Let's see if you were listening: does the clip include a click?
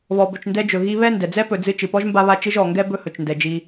no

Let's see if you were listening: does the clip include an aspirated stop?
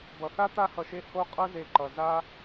no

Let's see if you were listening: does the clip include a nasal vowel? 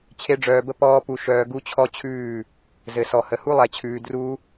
no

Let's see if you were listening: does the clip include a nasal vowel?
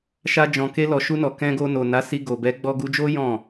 yes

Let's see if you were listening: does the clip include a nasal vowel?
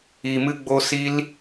no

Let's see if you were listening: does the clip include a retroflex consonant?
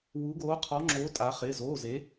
no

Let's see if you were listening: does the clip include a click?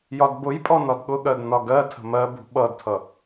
no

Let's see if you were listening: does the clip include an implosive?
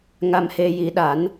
yes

